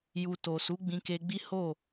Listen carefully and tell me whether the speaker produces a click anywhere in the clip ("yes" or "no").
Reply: no